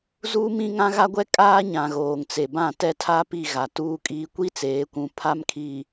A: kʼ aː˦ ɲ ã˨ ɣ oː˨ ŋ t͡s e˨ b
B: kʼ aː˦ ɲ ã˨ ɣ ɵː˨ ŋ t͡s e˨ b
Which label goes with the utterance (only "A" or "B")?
A